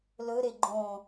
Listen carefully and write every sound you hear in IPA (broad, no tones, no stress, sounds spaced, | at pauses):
l ɵ ɾ e ɡ͡ǃ õ